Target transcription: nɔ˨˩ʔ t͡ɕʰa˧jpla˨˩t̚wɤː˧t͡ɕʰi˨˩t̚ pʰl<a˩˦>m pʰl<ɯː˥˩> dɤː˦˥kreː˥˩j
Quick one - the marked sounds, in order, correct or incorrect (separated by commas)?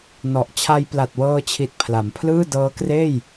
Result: correct, correct